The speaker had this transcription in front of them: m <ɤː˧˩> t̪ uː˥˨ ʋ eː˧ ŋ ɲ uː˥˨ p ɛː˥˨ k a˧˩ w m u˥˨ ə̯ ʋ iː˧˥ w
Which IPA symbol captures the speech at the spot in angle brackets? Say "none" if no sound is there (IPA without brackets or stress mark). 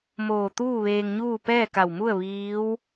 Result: oː˧˩